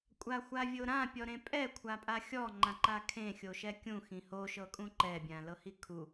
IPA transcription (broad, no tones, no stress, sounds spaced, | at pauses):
kʷʼ a xʷ a vʲ o ɾ ã pʲ ɔ ɾ ẽ pʼ ɛ kʷʰ a pʼ a xʲ ɔ ŋ͡ǃ ã ǃ a kʰ ẽ xʲ o ʃ ɛ kʲ ũ x ĩ h o ʃ ɤ kʼ ũ ǃ ɛ bʲ ã l ɤ h i kʰ u